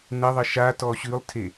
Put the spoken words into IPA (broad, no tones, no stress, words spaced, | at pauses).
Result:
nəðˤə ʃa tɔɕʉlˠtʰe